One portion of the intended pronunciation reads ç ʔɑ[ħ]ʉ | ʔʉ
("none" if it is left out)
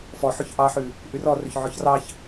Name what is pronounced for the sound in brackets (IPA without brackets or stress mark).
ħ